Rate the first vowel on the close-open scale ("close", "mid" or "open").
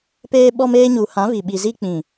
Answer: mid